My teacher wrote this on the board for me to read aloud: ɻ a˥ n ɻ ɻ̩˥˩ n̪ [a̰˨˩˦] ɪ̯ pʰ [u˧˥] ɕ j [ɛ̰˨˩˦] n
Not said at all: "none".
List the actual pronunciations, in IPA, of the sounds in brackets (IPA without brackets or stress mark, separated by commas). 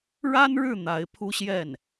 a˧˥, u˥, ɛ˥˩